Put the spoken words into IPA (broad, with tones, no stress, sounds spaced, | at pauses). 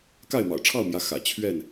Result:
k a˥˨ ɪ̯ m ɑ̰˨˩ ʊ̯ ʈ͡ʂʰ ɑ˥˨ ʊ̯ m j ä˨˦ x ä̰˨˩ t͡ɕʰ ɥ ɛ˥˨ n